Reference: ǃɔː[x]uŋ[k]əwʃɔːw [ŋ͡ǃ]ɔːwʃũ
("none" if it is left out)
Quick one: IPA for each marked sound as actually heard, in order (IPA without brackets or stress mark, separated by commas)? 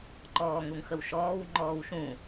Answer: ŋ, x, ŋ͡ǃ